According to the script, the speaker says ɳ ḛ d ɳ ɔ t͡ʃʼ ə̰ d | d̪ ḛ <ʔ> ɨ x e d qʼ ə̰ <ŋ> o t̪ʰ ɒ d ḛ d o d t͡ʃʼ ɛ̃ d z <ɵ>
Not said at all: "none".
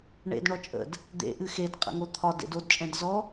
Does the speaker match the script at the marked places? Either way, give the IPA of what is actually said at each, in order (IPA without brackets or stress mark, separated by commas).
ʔ, ŋ, ɔ